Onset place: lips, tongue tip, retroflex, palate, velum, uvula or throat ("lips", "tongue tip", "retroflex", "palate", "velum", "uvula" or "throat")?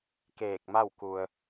velum